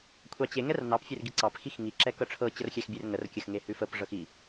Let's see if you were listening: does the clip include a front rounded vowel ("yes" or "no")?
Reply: no